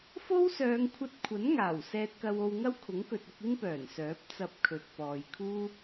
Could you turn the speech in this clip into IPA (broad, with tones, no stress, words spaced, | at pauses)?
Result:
fo˥wsœː˨˧ŋkʷʰɐ˧t̚ kʷʰɐ˨˥nŋaː˨˩w sɛː˧t̚kɐ˧wo˧wŋɐ˥w kʰʊ˨˥ŋkɵ˨t̚ʊ˧k̚ ɪ˥ŋpœː˨˩n sœː˨˥p̚t͡sɐ˧p̚ kʰɵ˨t̚pɔː˨jkʰuː˥